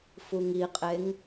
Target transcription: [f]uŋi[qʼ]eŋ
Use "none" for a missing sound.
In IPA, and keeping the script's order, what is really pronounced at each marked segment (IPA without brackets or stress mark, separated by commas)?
f, qʼ